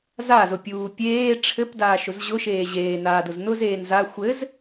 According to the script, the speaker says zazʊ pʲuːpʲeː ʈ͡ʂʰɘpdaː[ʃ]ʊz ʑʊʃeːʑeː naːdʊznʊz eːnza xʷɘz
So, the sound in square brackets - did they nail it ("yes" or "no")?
yes